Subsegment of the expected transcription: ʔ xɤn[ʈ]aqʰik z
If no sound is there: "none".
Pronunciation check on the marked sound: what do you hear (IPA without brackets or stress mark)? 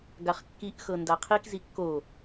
d